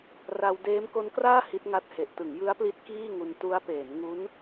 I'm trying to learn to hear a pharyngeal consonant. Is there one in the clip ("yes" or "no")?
no